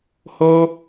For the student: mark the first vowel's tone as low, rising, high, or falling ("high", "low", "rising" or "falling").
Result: high